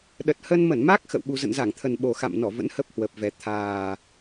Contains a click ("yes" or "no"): no